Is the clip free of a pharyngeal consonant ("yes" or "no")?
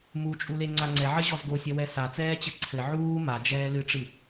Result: no